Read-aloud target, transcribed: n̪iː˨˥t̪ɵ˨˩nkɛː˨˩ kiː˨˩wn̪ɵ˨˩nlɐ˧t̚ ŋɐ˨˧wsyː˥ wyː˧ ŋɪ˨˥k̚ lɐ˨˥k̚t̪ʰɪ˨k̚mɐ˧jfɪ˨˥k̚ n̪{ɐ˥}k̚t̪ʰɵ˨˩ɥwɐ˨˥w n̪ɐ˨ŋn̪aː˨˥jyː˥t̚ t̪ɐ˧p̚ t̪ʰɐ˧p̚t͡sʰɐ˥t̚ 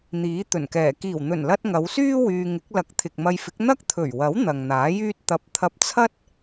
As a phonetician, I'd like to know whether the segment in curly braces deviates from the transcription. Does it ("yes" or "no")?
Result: no